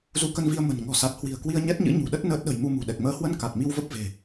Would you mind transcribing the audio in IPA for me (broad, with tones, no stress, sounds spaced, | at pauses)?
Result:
z u˨˦ k ə˧ n v i˧ ə̯ m ə̤˨˩ n ŋ ɔ̤˨˩ s a˨˩ t̚ h w i̤˨˩ ə̯ k w i˧ ə̯ ɲ ɛ˦˥ t̚ ɲ ɨ̰˧˥ ɲ ṳ˨˩ ɗ ə˦˥ t̚ n əː˦˥ t̚ ɗ ə̤˨˩ j m u˧ m ṳ˨˩ ɗ ɛ˨˩ k̚ m əː˨˦ h w ə˧ n k a˨˩ t̚ m i˧ w v ə˦˥ p̚ v e̤˨˩